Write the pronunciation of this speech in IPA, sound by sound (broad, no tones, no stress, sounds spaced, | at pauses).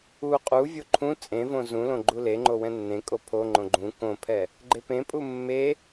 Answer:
u qʼ u vʲ o ǃʰ ũ t͡sʼ ẽ v õ z ũ l õ ɡ͡ǃ u l e ŋ͡ǃ o w ɛ̃ nː ẽ kʼ o pʰ o ŋ͡ǃ õ ɡ͡ǃ ũ k õ pʰ ɛ | ɡ͡ǃ e p ẽ pʼ u mː e